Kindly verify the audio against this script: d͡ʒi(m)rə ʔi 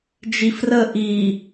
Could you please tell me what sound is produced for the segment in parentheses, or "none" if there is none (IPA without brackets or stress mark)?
f